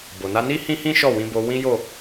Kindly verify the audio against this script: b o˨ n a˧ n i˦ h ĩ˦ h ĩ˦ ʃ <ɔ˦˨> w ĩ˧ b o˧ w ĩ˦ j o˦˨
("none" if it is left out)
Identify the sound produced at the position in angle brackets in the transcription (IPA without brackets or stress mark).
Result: ɔ˦˨